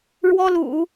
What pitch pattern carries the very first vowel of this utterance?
high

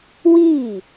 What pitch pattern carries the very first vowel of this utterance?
falling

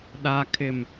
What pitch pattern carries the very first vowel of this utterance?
low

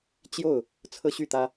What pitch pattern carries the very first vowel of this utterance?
falling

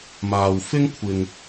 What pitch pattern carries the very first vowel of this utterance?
low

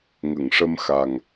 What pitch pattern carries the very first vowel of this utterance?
low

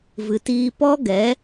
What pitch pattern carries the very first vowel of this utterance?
low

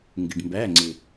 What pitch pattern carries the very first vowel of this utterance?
low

